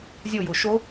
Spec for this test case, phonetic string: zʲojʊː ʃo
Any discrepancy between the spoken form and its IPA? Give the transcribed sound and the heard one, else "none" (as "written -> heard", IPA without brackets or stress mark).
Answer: none